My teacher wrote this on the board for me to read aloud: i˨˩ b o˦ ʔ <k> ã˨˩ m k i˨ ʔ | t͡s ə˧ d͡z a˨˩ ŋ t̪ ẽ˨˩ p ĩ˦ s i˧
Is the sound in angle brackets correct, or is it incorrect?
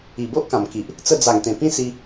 correct